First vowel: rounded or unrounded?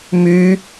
rounded